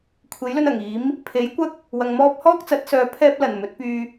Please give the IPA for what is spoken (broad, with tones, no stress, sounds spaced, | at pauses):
kʷʰ e˨˥ j l ɵ˧ n ɐ˨˩ ŋ iː˨˥ m | pʰ e˨˥ j kʷ ɐ˥ k̚ | w ɐ˨ ŋ m ɔː˥ p̚ h ɔː˥ k̚ t͡s ɐ˨˥ t̚ s œː˨˧ pʰ ɛː˥ p̚ l ɐ˨˩ n m ɵ˨˥ t̚ p yː˥